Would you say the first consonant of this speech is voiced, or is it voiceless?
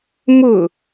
voiced